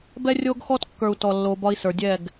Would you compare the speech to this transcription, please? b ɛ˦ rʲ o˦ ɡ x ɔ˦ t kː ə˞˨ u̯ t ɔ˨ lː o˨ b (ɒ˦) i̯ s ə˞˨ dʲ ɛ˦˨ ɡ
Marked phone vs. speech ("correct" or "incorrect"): correct